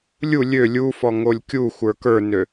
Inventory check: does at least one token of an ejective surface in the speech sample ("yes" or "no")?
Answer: no